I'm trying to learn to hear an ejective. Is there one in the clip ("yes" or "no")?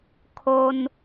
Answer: no